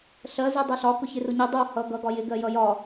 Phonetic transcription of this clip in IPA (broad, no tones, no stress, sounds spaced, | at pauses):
ɬ ɜ z i dˤ ɜ ɬ ɒ k ʊ ç ɪ r ʊ ɲ i dˤ u h ʌ ɡ ʌ ɡ ɒ j ɪ ɡ ɜ j ʌ j ɒ